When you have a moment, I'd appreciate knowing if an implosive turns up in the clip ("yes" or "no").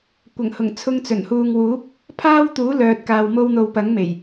no